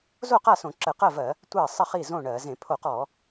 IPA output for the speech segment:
zo˥˩qa˥˩sõ˧˩˧ ǁə˧˩˧qɜ˥˩vɜ˧˩˧ | tʷɜ˥˩ sˤə˥˩χi˥˩zõ˥˩ ɳɜ˧˩˧ zẽ˧˩˧pʰo˧˩˧qɔ˧˩˧

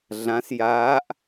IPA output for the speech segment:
ɮãs jaːʔ

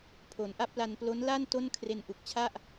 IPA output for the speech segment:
pʰo˩˦nʔa˥˩p̚la˧n plo˦˥n la˥˩n to˥˩nkʰre˧nʔu˨˩k̚t͡ɕʰa˥˩ʔ

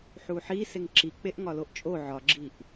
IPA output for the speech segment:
ħuħi seŋǁik͡peʔ ŋɒloʔt͡ʃʼo ʕɒɡ͡ǁiʔ

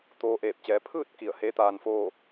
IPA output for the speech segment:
t̪oː˧ ʔeː˧˩p̚t͡ɕɛː˩˧pʰɯː˥˨t̚ ki˧˩ə̯heː˧˥t̪aː˧nfoː˥˨

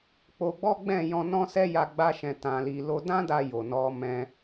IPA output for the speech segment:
k͡po˧ɡ͡bɔ˦ ɡ͡bɛ̃˦˨ jɔ̃˧nɔ̃˦sɛ˦ ja˧ ɡ͡ba˦ʃɛ̃˧ tã˧li˧ lo˧dã˦da˧ jo˨nɔ˨˦mɛ̃˧

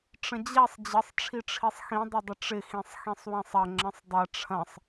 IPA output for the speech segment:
ʈ͡ʂə̃d͡ʑɛsˤ d͡ʑəsˤ ʈ͡ʂʰiʈ͡ʂʰisˤxĩ dˤədˤəʈ͡ʂɪ xĩsˤxĩsˤwĩsˤɐ ŋ͡ǁə̃sˤdˤɐ ʈ͡ʂʰɐ̃sˤ

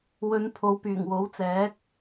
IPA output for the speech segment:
wɵ˨˧n pʰo˨wpyː˨˩ŋ wo˨˥wt͡sɛː˨˥k̚

